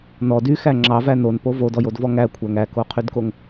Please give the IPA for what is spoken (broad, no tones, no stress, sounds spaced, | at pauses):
n ɔ d y x æ ŋ͡ǁ ɑ v æ n o n p o v o d ɔ j o d v ɔ ŋ æ kʷʰ æ ŋ æ k o qʰ y d k o ŋ